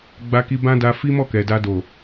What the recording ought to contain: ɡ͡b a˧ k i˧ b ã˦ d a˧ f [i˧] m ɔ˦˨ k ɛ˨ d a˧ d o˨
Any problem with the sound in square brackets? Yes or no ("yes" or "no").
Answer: yes